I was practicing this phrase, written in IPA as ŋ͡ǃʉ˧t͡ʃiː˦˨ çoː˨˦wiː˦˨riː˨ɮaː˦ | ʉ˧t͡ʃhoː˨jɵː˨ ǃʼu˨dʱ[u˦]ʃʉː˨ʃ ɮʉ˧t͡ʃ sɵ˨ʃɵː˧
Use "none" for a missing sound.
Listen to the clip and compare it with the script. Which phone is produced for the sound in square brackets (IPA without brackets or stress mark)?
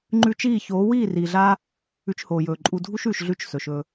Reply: u˦